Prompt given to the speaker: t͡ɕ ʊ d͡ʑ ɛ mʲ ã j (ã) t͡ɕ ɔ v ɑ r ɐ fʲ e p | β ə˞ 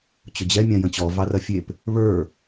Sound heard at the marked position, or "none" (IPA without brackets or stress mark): ə̃